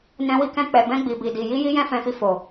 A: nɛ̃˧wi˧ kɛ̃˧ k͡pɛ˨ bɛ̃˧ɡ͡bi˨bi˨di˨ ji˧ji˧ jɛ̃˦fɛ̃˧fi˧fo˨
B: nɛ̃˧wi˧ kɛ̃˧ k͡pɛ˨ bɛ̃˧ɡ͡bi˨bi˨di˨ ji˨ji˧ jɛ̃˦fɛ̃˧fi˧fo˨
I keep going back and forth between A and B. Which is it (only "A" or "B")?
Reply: A